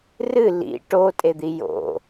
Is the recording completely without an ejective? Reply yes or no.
no